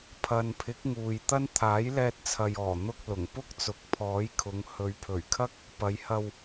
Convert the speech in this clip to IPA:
pʰɐ˨npʰɪ˨˥k̚ ŋuː˨jt̪ɐ˥n t̪ʰaː˨˥jlɛː˧t̚t͡sʰɐ˨jɔː˨˩ n̪ʊ˧k̚ lʊ˨˩ŋpʊ˥k̚ t͡sʊ˨k̚pʰɔː˨˥jkʰʊ˨˧ŋ hɵ˨˧ɥpʰɵ˨˩ɥkʰɐ˥k̚ | pɐ˨˧jhɐ˧w

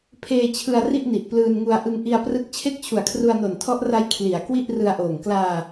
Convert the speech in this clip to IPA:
pʰeː˧ t͡ɕʰɯ˧a̯ ri˥˩ʔni˨˩ʔ plɯː˧nŋu˧a̯ ʔɯ˧ŋʔi˧a̯ prɯ˦˥k̚ t͡ɕʰe˥˩k̚t͡ɕʰu˨˩a̯kʰru˧a̯no˨˩n tʰɔ˦˥ʔra˦˥j kʰli˩˦a̯ kwi˥˩ʔrɯ˧a̯ʔoː˨˩ŋ klaː˧

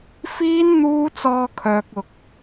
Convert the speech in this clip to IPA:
fiː˥n n̪uː˥ t͡sɔː˧kʰœː˨k̚ ʊ˨k̚

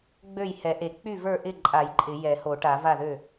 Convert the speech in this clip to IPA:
ɡ͡bø˥˩jhɛ˨˩˦ʔe˨˩˦ k͡py˥˩və˞˥˩ʔɪ˥˩ǃʼa˨˩˦j ǃʼɪ˨˩˦jɛ˨˩˦ ho˨˩˦ʈa˨˩˦va˥˩ðø˥˩

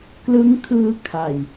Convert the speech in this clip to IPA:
klɯ˦˥ŋkʰɯː˧kʰa˨˩j

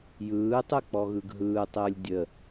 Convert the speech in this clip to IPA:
jɯːtˤɯ k͡pɔɣɯɡɦɯːtˤɯːlʲ dʲə

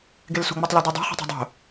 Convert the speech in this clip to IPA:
ɡelsṳŋ͡mutˤlæ dødˤo̤ χi̤tˤi̤dˤo̤

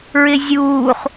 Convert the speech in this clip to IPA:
ɹɪzʲuːχ

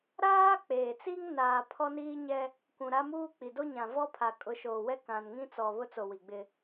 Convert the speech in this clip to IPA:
ɾaː˦ k͡peː˨t͡si˦ŋ naː˨ pʰɔ˦niː˦ɲɛ˦ | kʷũ˨ɾa˦ muː˦k͡pi˨ do˦ɲã˨vɔ˦ pʰa˨kʼʊ˨˦ʃoː˨wɛ˦ kã˨nŋĩ˦t͡sɔ˨ βʊ˦t͡so˨ wi˨ɡ͡bɪ˦

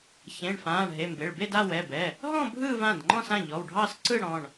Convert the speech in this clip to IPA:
çẽ˩˧˩ɳfãː˩˧˩ɳɦe˩˧˩ mbe˩˧˩ɭbe˥˧d a˥˧wɛ˩˧˩bɛ˩˧˩ | ɦɔ̃˥˧ bʱɯː˥˧vã˩˧˩dŋ͡ǃɔ̃˥˧sã˩˧˩ ʎɔ˩˧˩wɖʱɑ˥˧sǀɯ˥˧ ɽɔ̃˩˧˩ɳ

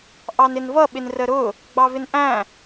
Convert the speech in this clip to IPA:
ʔɑnɪnvʌ ɓɪnrəɾʊ | ɡ͡bɑvɪnʔæ̃

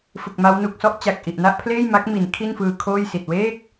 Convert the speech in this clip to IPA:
fɯ˨˩k̚ma˦˥w nu˨˩k̚sɔ˥˩ʔ t͡ɕa˨˩k̚ʔi˨˩ʔna˥˩ʔpʰleː˥˩j ma˦˥k̚mi˩˦n kʰi˥˩nfɯː˧kʰoː˥˩jsi˨˩t̚ weː˥˩k̚

